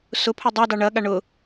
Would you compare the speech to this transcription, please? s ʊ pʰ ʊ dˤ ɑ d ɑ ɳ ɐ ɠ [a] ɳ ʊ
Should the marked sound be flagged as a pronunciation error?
no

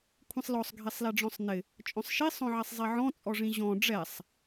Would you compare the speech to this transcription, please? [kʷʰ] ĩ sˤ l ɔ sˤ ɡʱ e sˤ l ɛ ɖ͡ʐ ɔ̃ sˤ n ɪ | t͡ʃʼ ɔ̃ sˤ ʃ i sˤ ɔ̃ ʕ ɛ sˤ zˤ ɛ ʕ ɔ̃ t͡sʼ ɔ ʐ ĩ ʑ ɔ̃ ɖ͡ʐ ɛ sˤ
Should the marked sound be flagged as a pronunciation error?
no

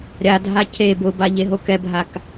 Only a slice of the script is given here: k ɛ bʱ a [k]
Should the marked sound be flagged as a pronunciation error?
no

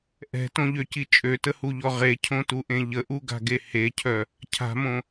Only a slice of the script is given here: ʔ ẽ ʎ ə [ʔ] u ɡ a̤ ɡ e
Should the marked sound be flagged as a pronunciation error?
no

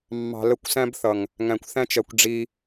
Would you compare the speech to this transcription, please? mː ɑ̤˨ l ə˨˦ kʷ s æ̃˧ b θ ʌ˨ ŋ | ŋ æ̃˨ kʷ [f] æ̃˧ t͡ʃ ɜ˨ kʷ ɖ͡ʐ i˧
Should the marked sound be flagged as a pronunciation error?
yes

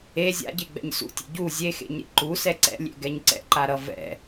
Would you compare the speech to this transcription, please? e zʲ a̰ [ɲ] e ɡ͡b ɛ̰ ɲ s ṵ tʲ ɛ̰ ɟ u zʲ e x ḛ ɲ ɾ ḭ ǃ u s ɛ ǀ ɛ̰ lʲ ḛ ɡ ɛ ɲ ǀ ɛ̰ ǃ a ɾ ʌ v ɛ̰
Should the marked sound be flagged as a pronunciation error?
yes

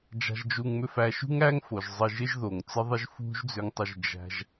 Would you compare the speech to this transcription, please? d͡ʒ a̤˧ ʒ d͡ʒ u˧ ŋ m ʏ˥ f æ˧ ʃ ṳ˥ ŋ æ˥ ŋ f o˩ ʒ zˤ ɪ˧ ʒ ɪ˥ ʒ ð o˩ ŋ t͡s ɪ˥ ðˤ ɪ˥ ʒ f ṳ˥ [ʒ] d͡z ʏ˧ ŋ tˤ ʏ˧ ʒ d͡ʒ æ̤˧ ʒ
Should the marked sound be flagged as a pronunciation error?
no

